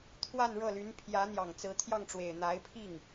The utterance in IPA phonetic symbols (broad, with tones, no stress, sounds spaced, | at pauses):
t̪ʰ w a˥˧ n ɻ ɤ˥˩ l y˧˥ n pʰ j ä˧˥ n̪ j ɑ˨˩ ŋ t͡s ɹ̩˧˥ t̪ʰ j ɑ˥˩ ŋ ʈ͡ʂ w e˨˩ ɪ̯ n̪ a˧˥ ɪ̯ pʰ i˥˩ ŋ